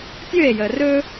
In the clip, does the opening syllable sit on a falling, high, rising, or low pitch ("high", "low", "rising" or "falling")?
falling